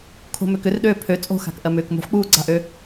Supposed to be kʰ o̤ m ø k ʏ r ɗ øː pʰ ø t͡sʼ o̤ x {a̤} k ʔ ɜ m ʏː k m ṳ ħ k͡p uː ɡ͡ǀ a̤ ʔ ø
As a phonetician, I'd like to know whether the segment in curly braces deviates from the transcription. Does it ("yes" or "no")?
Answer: no